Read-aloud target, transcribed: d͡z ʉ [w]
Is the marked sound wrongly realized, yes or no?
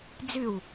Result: no